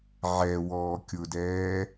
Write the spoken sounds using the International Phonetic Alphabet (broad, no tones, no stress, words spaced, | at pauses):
ʕɛ wɔːkʲʊdɛː